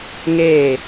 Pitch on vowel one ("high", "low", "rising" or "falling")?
falling